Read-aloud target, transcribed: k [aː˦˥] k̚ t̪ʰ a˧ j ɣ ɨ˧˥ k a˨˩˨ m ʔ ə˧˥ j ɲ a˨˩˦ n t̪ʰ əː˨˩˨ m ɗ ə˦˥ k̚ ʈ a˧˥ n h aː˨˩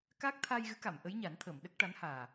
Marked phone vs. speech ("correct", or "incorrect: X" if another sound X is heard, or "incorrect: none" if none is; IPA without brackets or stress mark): correct